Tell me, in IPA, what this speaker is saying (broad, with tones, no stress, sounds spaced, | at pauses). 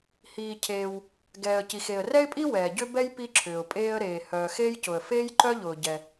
h iː˩ cʰ eː˩ w | ɡ ɛː˩ ə̯ c i˩ x e˩ ə̯ r ɛ˥ ɪ̯ pʼ i˥ w ɛː˩ ɟ ʏ˥ b ɛ˥ j p i˥ ǁʰ ʏː˩ ʊ̯ pʼ eː˥ ə̯ ɾ eː˩ h œː˩ x eː˥ j c ʊ˩ ə̯ f eː˥ j ǃ œ˥ ʎ ʊː˩ ɟ ɛ˩